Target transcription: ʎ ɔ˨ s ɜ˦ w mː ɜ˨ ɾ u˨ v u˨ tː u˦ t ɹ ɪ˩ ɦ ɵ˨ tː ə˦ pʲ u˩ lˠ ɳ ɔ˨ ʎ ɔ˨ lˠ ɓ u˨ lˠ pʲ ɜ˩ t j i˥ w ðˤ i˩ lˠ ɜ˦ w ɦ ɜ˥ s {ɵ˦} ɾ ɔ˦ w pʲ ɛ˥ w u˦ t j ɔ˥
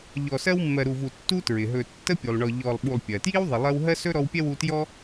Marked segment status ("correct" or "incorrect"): incorrect